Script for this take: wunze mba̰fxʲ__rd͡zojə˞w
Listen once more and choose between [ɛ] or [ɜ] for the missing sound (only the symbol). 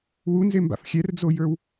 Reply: ɛ